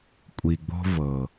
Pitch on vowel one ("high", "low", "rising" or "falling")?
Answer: low